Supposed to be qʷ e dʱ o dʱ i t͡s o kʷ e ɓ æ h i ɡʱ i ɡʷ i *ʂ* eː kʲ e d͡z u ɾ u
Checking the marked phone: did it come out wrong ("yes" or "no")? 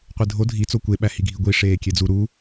no